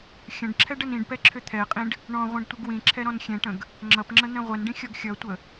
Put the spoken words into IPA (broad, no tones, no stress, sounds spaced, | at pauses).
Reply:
xʲ ə̃ ɖ ǁʰ ɛ ɖ ə n ĩ ɖ p ɛ ǁʰ ʏ t̪ʰ ɛ qʼ ĩ ɖ | ɳ ɔ̃ ʁʷ ĩ ɖ tʷ ɘ ɡ w ĩ ǁʰ ɛ ɾ ɔ̃ n xʲ ɛ̃ ʈ ə̃ ɡ | ŋ͡ǁ ʌ p ŋ͡ǁ ə n̪ ɛ̃ ʁʷ ɛ n ɖ ĩ xʲ ɔ ɡ xʲ ʌ tʷ ə